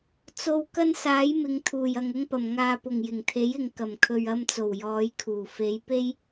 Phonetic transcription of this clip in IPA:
t͡so˨w kɐ˥nsaː˨˥jmɪ˨˧ŋ t̪ʰuː˨˩jɐ˨ŋ ʊ˥ŋpɐ˨m ŋaː˧pʊ˨ŋ jɪ˨˩ŋt̪ʰe˨˥jɪ˨˧ŋ kɐ˨˩mkʰɵ˨ɥ ɐ˧mt͡so˨˩w jɔː˨˧jkʰuː˨˩ fe˨˧jpe˥j

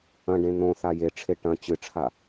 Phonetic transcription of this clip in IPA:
ɐ̃ɖẽ n̪õ θajeʈ͡ʂʰe ʈɐ̃ t͡ɕɨʈ͡ʂʰa

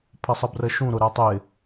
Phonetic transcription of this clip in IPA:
pʰəsˤəbrəʃũ ɾʊɾɛtˤɪ

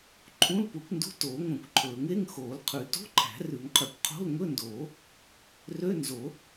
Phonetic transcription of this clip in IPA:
ǃʰũ˧˥˧lpu˨˩˦kʷndṳ˧˥˧ toː˨˩˦ŋʷœ̃˨˩˦kʷǃʰɵː˨˩˦ŋ e˧˥˧ŋxoː˨˩˦lqʰʉ˨˩˦ to̤˧˥˧ǃʰæ̤˨˩˦rʉ˨˩˦ŋqʰy˨˩˦kʷ qʰo̤˧˥˧lŋɵ˧˥˧ndoː˨˩˦ | rø˧˥˧nzo˨˩˦

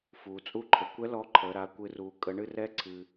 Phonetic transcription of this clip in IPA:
fuː˩t͡sʼu˧ǃʰə˩˧ kʷɛ˧˥ lɔ˧˥ǃʰəː˩˧ ɾa˩˧kʷɨ˩˧ruː˩ kʼə˩˧ɳɨ˧rɛ˧˥ ǀʰɨ˩

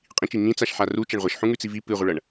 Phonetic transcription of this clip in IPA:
qʼĩt͡ʃi ŋĩt͡saʃ ħaru t͡ʃɐɳʁʷɐʃħũŋʉ t͡sivi pɨʁʷɨɭɐɳ

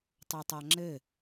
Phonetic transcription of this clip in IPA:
tˤotˤaŋ͡ǁɘ

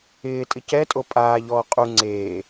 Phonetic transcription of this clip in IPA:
ɪːtʼɪ cɛtʼo pʼaːʎɔː qʼu ŋ͡ǀeː

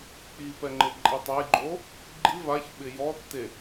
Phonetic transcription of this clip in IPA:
k͡pipɛŋ͡ǃɪǃʼi tˤejɡ͡ǃo | ɡ͡ǃi vaçɓɪ jɔtːe

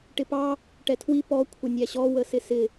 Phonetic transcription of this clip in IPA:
ʈɪpɑ | ʈɛtʰwi pɔ kʷʰənʲæɕɔ wəsɪsɪ

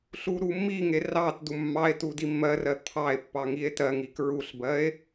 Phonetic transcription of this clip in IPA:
ɬuɾumːiŋe rɑt dumːɑe̯tu dimːɜrɜ t̪ʰɑe̯pːɑ ŋie̯tɜŋi kɹuɬbɜe̯

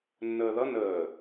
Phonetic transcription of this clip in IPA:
nːəːðʌ nəː

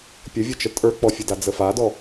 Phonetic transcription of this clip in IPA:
pʲəvʲɨt͡ʃə tʼə˞k͡pɔfʲɨda d͡zəfadɔ

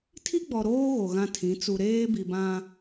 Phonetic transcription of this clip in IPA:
tʰi˦ɡ͡bɔ˨ ɾoː˦ ɣo˨ɣã˦tʰĩ˨˦ t͡su˨ɾeː˦bi˨bã˦

